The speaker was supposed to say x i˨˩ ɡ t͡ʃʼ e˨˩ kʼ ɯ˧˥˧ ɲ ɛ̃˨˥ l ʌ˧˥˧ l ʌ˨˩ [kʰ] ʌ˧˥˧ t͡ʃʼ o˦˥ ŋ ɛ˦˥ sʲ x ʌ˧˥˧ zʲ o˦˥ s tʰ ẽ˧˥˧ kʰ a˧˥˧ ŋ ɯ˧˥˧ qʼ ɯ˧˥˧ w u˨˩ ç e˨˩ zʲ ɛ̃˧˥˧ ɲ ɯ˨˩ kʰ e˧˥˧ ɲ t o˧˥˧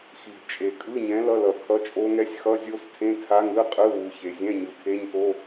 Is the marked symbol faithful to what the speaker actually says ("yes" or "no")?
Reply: yes